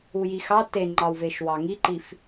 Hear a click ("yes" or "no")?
yes